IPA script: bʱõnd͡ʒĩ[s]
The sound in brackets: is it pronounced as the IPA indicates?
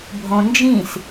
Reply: yes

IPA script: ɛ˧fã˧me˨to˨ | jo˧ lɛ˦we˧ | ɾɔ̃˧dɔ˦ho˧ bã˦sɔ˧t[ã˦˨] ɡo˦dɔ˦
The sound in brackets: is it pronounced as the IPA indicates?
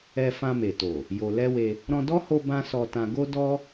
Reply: no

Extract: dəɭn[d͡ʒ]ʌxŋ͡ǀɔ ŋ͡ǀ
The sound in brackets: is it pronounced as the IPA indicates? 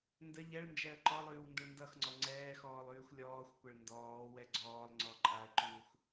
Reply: no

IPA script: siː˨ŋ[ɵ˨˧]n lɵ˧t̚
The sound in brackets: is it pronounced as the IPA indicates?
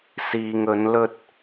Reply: yes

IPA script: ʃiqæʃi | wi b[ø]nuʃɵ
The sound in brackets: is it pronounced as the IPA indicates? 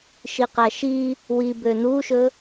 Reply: yes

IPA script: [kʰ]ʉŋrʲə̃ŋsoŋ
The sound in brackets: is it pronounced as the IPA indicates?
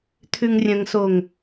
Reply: no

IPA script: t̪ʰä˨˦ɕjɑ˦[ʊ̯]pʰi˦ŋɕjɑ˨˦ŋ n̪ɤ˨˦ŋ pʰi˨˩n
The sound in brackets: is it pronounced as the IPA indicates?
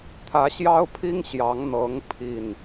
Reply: yes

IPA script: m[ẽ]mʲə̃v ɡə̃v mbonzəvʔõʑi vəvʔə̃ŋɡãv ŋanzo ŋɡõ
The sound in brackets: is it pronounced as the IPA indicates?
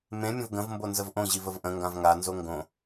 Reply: yes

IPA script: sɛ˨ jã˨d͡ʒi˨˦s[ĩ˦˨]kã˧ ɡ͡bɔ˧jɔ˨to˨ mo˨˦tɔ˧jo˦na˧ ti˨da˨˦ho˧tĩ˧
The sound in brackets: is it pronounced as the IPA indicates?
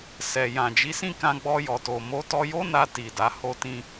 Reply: yes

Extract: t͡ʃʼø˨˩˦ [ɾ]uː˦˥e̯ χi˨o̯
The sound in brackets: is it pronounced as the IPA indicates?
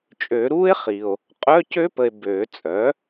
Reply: yes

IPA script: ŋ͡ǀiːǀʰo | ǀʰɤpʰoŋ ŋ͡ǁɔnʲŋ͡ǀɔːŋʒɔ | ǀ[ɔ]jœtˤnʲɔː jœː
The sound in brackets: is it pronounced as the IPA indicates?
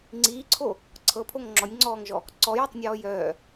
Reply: yes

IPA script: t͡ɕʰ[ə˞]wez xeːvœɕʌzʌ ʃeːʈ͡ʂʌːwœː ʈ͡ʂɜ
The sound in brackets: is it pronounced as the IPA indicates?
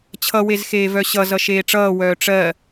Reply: no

